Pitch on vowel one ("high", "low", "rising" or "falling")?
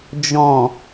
low